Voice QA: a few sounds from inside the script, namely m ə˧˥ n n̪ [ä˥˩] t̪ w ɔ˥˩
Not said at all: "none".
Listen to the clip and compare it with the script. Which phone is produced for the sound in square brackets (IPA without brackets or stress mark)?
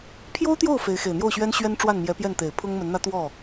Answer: ä˥